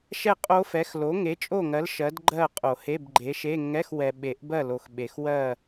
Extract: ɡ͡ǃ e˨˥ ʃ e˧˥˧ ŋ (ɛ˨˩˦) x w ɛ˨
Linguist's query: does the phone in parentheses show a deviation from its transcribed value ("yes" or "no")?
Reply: yes